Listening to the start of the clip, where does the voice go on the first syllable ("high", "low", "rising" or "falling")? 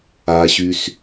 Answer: low